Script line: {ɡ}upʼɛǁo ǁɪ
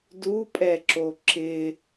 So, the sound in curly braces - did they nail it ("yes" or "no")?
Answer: no